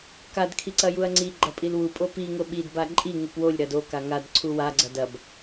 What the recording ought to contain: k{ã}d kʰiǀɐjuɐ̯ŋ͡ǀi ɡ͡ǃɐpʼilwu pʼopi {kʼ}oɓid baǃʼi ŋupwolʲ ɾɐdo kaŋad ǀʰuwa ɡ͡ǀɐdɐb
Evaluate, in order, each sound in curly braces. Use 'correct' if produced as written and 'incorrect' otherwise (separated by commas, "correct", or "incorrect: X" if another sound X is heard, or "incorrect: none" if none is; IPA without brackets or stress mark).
incorrect: a, incorrect: ŋ